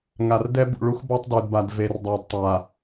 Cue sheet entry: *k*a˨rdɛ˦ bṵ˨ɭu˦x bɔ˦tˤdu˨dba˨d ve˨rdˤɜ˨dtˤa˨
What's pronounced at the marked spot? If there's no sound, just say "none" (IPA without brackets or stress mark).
ŋ